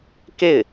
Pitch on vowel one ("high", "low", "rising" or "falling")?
falling